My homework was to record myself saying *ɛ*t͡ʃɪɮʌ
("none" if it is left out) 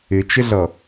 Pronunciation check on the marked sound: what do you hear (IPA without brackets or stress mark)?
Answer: ɪ